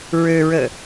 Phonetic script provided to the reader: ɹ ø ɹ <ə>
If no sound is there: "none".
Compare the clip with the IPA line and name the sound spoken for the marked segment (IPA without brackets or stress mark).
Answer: ə